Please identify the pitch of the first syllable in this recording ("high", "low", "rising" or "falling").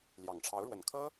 low